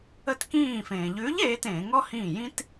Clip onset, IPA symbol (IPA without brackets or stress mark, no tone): ə